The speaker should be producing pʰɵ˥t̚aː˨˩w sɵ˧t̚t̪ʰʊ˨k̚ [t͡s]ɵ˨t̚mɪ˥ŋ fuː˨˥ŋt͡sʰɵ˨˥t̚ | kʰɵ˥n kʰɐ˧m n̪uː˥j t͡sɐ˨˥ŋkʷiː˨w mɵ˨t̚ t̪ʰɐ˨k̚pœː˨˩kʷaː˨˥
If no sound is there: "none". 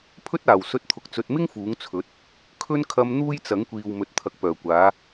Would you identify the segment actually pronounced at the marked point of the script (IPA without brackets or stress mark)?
t͡s